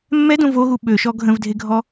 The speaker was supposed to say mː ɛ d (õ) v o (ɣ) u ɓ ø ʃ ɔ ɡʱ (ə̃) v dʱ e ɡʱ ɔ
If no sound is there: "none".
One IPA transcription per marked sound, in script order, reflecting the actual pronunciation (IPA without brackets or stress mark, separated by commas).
õ, ɣ, ə̃